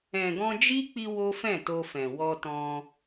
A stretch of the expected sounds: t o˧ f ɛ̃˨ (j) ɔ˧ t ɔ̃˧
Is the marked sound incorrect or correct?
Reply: incorrect